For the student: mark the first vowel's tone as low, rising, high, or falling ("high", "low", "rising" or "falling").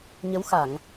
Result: rising